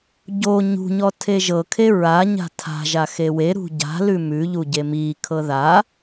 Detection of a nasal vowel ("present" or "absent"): absent